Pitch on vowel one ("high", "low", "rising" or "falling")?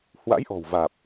rising